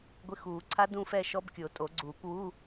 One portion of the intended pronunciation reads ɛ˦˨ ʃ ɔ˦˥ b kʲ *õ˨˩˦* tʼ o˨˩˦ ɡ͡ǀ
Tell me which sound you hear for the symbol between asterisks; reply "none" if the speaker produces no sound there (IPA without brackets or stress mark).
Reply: o˨˩˦